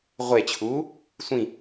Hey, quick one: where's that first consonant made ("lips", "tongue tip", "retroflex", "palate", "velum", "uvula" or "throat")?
uvula